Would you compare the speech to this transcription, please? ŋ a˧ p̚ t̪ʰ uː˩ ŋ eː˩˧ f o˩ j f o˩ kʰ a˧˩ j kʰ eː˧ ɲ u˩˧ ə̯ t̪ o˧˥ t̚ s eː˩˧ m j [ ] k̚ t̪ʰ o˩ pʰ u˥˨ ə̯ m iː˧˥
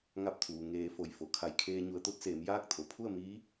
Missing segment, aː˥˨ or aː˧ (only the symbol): aː˥˨